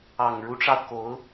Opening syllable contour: low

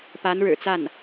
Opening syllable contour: rising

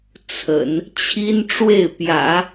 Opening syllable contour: low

